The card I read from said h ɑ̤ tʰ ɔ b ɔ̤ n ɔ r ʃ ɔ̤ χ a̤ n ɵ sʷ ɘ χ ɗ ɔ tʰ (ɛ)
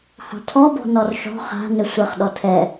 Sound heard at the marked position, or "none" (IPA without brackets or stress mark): ɛ